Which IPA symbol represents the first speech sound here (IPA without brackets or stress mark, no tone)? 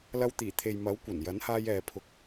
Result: l